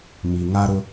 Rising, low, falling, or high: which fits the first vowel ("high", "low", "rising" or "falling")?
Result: low